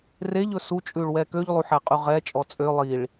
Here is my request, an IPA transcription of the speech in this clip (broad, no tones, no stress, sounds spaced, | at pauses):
r e ʎ ɵ s u t͡ʃʼ ʉ ɭ w ɛ k ø ʎ lˠ u ħ æ qʼ y ʁ ɛ t͡ʃʼ ɔ t͡sʼ ø lˠ i ɭ